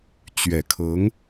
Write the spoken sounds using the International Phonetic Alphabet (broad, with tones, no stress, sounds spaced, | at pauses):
t͡ɕ ɥ ɛ˨˩ kʰ ɤ˧˥ ŋ